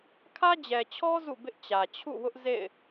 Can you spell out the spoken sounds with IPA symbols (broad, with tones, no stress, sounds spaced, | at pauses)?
kʰ ä˦ d͡ʑ ɛ˨ t͡ɕʰ ɔ˦ z ṵ˦˨ b ɪ˦ ʔ t͡ɕ ä˨ t͡ɕʰ ṵ˦˨ w ʊ˦ ʔ z ḛ˦˨ ɪ̯